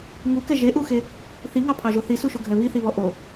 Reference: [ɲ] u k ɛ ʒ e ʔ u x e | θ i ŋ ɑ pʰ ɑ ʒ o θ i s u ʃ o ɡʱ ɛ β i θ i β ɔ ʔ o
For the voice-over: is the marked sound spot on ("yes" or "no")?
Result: no